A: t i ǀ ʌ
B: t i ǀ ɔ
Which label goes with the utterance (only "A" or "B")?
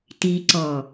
B